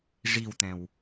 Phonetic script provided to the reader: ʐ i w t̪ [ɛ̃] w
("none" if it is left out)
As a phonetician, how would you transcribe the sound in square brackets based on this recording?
ɛ̃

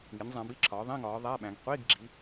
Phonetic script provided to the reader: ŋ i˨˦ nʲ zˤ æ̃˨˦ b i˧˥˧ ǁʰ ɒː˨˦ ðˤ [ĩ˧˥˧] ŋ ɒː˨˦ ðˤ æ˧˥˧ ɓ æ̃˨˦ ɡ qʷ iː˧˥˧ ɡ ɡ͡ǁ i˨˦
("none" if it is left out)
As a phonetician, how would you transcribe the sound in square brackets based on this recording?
ĩ˧˥˧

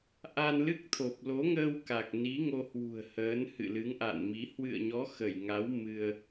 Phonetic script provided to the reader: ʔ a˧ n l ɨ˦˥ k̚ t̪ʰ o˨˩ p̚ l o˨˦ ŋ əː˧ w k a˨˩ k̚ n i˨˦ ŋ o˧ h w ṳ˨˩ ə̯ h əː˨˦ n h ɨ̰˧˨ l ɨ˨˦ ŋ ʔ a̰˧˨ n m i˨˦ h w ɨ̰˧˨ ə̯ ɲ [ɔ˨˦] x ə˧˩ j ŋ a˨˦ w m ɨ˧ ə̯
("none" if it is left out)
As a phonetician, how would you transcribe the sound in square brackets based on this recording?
ɔ˨˦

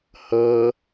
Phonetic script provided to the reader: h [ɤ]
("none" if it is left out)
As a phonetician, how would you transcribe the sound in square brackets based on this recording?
ɤ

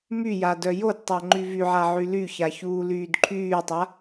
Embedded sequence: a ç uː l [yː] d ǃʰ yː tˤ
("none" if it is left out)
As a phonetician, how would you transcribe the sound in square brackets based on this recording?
yː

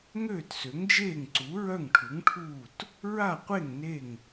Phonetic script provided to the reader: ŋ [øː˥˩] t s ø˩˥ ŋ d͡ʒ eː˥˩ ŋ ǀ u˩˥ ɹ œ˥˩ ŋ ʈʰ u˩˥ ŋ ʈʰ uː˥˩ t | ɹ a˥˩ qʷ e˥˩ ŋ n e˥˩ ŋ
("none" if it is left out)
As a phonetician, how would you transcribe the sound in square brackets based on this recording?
øː˥˩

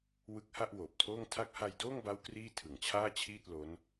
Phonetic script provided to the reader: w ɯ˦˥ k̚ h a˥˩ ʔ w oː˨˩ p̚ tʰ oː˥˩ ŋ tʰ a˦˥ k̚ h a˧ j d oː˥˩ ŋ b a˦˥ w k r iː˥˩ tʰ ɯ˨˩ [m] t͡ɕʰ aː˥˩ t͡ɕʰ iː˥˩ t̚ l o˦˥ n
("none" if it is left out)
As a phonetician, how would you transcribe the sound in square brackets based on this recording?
ŋ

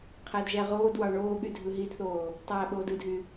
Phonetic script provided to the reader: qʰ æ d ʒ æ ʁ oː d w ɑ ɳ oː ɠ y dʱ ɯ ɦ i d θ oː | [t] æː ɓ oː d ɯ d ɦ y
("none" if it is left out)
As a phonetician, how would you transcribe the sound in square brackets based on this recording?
tˤ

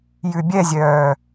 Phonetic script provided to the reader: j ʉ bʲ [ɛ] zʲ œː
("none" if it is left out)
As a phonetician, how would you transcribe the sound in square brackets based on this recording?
ɛ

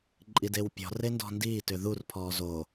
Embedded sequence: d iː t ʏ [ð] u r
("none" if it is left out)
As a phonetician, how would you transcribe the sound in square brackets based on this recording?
ð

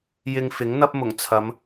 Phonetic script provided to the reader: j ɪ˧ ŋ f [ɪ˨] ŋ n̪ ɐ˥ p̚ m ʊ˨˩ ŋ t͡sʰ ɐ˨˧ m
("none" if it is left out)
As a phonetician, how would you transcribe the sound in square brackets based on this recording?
ɪ˨˥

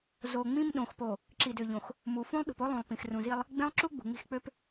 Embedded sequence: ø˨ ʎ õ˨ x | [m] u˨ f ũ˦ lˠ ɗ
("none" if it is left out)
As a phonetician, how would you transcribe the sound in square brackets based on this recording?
m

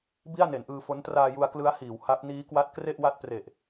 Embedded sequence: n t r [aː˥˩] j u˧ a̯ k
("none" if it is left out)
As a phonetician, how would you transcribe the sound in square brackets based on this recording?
aː˧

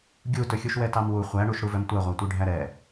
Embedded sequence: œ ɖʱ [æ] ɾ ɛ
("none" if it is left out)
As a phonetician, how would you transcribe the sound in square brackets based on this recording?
æ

